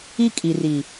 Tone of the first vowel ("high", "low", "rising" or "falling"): high